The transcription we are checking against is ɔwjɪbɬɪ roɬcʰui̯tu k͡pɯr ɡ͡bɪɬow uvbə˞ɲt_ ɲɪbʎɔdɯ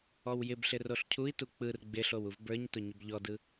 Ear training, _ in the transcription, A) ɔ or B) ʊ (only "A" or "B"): B